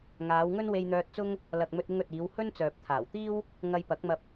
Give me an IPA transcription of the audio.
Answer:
ŋ aː˨˧ w ŋ ɵ˥ n w e˧ j n̪ œː˧ t̚ t͡s ʊ˥ ŋ | l ɐ˨ k̚ m ɵ˧ t̚ ɪ˧ ŋ ɵ˨ t̚ iː˨˧ w h ɵ˥ n t͡s œː˨ p̚ t̪ʰ aː˨˩ w t̪ iː˥ w | ŋ ɐ˧ j p ɐ˨˥ k̚ m ɐ˧ p̚

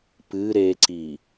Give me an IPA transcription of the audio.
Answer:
p ɨ ɾ e ǀ i

